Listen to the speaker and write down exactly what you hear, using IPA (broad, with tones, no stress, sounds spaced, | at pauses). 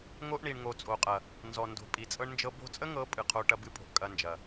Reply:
ŋ o˦ ʔ ɳ i˨ ɳ ŋ o˨ t͡sʼ o˨ qʼ ɐ˨ | n z ɔ˨ n d o̤˨ pʼ i˨ t͡sʼ ɤ˦ ɳ n d͡ʒ ɤ˦ b o̤˦ t͡sʼ ə˦ ŋ ɤ˨˦ pʼ ɨ˨ qʰ o˦ ʈ ɐ˦ b ɨ˦ pʼ o̤˨ ʔ kʼ ɐ˦ n d͡ʒ ɐ˨